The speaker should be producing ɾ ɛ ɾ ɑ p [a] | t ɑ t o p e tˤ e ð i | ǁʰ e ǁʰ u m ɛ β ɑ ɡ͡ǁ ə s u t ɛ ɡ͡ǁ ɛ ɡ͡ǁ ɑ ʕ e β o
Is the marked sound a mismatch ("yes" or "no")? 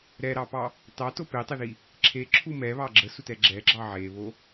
yes